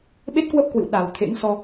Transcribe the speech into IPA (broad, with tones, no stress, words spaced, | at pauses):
ɓe˦˥t̚kwə˦˥p̚kwɨ̰˧˨w ɗa˨˩w t̪ʰḛ˧˥ŋsɔ˧